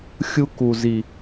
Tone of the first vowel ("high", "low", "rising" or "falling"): high